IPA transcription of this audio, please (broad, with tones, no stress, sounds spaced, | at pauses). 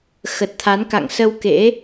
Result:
x ə˨˩ t̚ t̪ʰ a˨˦ n k a̰˧˨ ŋ s ə˧ w k ḛ˧˥